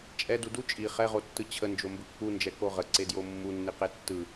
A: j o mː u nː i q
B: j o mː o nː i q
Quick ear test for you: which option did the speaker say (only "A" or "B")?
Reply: A